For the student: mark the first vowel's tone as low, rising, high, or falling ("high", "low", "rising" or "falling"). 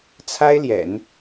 high